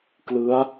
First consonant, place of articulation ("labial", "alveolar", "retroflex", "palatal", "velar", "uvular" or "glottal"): velar